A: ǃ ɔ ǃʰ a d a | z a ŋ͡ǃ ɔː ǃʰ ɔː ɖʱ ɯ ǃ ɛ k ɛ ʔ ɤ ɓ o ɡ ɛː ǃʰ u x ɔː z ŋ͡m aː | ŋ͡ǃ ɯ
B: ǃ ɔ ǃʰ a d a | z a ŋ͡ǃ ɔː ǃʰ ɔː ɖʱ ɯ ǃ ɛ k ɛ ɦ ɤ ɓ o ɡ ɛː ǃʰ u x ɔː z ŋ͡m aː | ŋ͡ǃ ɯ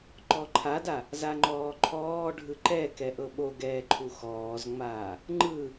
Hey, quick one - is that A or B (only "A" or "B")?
A